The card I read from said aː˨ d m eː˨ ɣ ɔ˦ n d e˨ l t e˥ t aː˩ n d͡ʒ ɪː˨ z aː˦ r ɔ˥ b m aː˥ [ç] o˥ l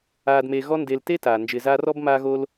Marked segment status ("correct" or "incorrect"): incorrect